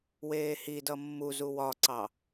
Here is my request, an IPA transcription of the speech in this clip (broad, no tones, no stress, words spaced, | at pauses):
weːhi dʌmːuzu wɒǀɑ